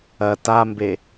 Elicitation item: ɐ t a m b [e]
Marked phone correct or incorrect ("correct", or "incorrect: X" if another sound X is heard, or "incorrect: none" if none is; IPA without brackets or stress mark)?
correct